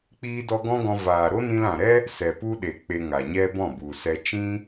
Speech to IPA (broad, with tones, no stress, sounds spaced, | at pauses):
k͡p iː˦ d ɔ˦ ɡ ɔ̃˦ ɡ ɔ̃˧ v aː˨ ɾ o˦ n ĩ˧ l ã˨ ɾ ɛ˦ | s ɛ˨ p u˦ ɗ e˨ k͡p e˧ ŋ a˨ ɲ ɛ˦ b ɔ̃˦˨ b u˨ s ɛ˧ t͡ʃ ĩ˦